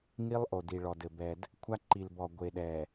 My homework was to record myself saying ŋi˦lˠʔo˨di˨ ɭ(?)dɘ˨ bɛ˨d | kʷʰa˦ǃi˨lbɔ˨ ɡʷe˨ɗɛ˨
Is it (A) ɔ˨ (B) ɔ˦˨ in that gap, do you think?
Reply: A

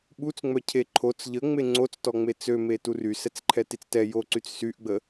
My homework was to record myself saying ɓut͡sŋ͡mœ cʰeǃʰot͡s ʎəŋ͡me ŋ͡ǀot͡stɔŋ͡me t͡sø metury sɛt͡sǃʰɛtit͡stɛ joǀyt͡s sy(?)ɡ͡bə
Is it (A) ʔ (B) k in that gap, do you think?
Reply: A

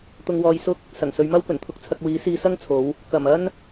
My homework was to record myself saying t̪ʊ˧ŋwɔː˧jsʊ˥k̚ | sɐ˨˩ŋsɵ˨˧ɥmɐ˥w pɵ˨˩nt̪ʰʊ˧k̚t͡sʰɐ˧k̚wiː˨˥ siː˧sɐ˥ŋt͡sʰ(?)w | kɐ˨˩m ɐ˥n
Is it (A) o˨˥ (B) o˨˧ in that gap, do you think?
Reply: B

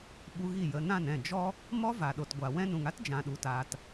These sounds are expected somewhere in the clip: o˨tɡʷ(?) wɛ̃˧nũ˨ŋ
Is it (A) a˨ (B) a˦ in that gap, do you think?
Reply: A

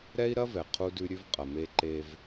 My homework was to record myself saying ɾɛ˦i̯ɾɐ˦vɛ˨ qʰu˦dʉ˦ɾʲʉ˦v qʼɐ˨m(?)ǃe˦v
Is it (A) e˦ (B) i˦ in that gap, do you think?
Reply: A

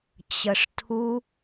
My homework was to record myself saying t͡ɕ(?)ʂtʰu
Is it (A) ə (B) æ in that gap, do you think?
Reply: A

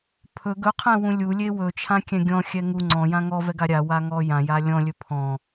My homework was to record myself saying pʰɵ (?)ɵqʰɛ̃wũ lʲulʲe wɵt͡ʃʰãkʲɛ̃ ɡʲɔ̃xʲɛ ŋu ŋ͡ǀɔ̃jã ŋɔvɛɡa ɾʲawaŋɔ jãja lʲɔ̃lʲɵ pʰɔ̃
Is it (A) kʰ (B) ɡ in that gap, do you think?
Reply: B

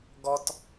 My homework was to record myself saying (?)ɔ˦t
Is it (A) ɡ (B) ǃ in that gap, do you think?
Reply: A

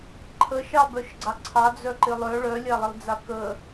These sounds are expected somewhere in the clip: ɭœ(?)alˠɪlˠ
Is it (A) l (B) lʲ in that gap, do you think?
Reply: B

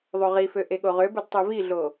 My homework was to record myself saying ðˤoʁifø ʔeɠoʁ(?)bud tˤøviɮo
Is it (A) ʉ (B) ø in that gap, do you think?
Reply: B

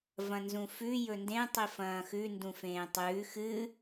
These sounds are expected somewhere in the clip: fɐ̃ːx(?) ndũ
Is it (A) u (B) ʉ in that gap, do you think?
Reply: B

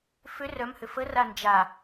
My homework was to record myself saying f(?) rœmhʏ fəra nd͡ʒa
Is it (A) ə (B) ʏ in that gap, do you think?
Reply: B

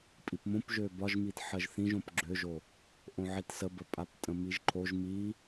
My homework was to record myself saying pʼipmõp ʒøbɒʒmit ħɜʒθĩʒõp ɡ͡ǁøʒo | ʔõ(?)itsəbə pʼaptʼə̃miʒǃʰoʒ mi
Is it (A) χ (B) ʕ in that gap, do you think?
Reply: B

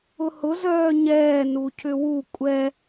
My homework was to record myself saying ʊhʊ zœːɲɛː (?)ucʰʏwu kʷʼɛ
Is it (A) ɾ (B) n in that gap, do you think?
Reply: B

